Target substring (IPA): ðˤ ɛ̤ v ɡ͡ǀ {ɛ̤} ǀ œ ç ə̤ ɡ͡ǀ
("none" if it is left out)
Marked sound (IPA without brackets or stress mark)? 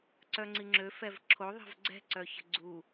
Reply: ɛ̤